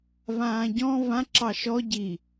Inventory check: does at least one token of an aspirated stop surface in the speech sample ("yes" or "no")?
no